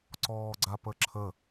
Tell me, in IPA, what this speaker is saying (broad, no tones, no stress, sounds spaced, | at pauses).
ǀ ɔː ɡ͡ǀ a p ə ǁʰ ə